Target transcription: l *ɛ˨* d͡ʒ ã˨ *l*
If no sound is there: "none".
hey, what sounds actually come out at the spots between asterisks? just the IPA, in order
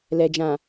ɛ˨, none

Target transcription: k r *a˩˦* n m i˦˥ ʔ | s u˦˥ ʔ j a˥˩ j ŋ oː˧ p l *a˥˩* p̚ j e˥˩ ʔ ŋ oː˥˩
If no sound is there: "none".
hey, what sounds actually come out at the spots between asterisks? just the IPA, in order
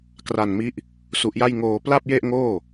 a˧, a˥˩

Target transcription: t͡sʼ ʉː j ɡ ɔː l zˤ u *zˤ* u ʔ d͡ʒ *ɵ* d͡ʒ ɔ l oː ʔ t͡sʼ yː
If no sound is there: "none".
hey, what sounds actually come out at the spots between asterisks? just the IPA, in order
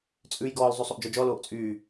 sˤ, ɔ

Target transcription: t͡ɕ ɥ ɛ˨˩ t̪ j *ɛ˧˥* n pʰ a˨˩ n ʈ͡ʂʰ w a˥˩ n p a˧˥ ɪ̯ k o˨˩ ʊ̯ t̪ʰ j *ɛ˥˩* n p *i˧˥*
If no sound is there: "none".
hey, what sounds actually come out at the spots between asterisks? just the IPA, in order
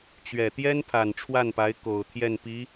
ɛ˥, ɛ˥˩, i˧˥

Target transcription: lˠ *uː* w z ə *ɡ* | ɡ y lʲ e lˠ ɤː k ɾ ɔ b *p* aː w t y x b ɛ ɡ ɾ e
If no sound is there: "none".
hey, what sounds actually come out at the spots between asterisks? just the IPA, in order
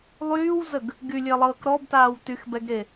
yː, ɡ, t

